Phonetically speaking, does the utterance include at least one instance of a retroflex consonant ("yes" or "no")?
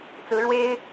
yes